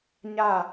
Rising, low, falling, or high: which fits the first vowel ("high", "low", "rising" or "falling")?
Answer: falling